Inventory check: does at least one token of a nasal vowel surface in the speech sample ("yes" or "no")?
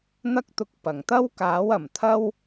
no